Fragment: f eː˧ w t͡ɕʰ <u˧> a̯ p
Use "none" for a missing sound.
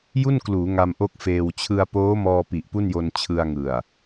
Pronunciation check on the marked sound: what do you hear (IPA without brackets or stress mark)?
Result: ɯ˧